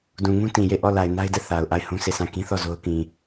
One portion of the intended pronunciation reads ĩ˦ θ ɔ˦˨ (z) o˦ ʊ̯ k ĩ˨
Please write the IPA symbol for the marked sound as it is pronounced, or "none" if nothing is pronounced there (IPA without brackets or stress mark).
z